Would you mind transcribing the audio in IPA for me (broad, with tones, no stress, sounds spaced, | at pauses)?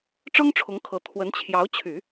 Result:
ʈ͡ʂ ɤ˥ ŋ ʈ͡ʂʰ ʊ˧˥ ŋ kʰ ɤ˧˥ t̪ʰ w ə˧˥ n t͡ɕʰ j ɑ˧˥ ʊ̯ t͡ɕʰ y˨˩˦